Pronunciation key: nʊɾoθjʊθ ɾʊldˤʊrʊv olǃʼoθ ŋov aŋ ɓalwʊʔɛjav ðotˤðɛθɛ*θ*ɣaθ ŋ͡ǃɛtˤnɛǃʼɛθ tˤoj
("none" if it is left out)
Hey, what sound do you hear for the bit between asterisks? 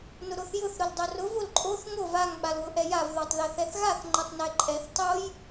θ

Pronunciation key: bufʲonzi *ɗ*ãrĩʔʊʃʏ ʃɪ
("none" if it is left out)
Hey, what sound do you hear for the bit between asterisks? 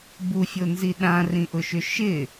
ɗ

